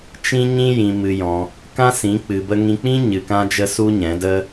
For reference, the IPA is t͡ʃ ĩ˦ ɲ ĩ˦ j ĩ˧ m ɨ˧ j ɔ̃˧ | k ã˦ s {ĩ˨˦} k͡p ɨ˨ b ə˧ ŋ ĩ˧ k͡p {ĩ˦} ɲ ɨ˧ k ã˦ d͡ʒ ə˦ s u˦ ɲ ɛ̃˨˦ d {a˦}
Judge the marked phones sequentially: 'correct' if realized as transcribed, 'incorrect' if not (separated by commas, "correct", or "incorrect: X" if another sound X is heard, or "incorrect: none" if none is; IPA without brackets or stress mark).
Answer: correct, correct, incorrect: ə˦